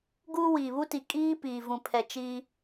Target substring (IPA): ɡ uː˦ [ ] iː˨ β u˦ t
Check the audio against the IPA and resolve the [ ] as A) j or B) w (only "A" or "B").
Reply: B